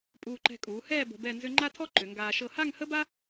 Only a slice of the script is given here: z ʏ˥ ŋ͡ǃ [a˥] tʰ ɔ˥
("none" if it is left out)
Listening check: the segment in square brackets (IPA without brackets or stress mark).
a˥